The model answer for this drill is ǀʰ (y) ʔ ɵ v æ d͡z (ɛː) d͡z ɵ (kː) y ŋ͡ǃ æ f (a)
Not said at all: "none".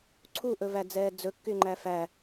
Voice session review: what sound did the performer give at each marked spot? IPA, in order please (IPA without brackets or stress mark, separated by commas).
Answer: u, ɛː, kː, æ